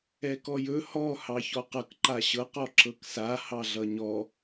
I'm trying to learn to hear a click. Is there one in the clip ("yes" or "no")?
yes